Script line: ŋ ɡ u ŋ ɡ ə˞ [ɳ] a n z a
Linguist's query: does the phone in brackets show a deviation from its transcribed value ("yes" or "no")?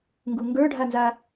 yes